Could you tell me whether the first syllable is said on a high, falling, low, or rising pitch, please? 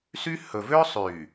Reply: high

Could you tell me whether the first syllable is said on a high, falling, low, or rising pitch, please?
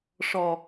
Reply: low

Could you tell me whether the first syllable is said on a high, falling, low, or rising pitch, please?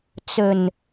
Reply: low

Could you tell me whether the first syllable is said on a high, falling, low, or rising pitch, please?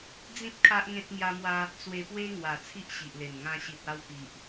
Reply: high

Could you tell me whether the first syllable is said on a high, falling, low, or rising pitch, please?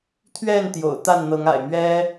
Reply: falling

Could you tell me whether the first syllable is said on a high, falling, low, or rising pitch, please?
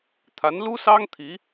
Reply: rising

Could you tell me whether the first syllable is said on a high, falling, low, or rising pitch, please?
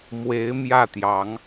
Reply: rising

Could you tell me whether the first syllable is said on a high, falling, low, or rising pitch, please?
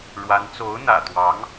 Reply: rising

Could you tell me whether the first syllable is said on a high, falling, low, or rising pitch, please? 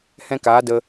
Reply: high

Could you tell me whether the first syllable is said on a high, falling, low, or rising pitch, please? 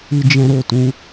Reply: high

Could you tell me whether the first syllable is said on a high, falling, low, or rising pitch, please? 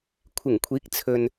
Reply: low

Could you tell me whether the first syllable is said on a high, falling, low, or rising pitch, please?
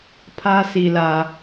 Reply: high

